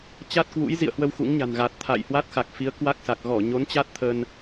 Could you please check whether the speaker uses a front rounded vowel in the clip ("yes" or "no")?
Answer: no